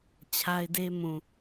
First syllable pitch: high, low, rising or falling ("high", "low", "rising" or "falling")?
high